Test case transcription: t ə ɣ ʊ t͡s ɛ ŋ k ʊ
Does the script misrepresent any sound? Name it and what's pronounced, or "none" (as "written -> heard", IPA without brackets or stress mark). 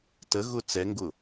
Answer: k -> ɡ